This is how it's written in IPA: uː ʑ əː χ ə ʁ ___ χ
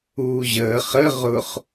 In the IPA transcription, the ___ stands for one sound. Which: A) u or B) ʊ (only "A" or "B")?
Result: B